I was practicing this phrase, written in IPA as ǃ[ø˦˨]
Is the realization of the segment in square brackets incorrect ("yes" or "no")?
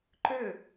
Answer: no